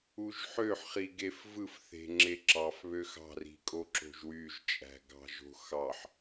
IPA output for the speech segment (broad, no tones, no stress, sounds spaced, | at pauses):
u ʒ ħ ø ħ χ i ɡ e f v ɯ f θ e̤ ŋ͡ǁ e ǁ ɑ f β ø x ɑ̤ r i̤ kʼ o ǁ o̤ ʒ w y ʒ t͡ʃʼ æ̤ ɡ ɑ̤ ʒ o̤ x ɑ ħ